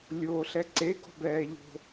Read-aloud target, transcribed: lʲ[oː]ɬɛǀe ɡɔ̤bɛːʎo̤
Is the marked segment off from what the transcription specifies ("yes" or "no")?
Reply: no